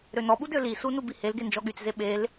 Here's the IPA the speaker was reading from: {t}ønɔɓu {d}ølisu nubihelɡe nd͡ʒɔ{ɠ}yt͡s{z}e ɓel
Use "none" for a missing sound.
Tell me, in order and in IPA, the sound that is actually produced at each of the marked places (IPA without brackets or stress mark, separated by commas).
ɾ, d, ɠ, z